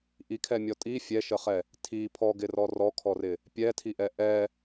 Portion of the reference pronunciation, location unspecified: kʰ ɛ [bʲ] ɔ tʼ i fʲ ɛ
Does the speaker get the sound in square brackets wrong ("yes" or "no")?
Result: yes